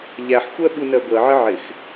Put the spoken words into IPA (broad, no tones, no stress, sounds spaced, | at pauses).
ʎ æ ħ xʷ ɜ ɓ u n ɜ ɡʷ ɜ ʕ ɪ ʕ ɪ x